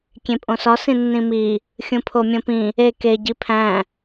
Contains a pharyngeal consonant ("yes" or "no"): no